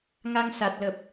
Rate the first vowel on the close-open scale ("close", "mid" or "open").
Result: open